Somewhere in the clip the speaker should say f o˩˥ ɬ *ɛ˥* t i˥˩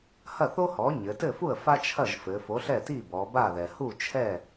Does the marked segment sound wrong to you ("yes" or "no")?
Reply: yes